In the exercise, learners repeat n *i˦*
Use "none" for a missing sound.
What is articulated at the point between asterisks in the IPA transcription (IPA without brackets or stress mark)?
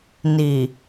i˨